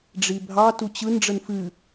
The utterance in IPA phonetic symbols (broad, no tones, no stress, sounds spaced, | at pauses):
ɖ͡ʐ i bʱ ɑ t u t͡ɕ ɯ n ɖ͡ʐ ə n f ɨ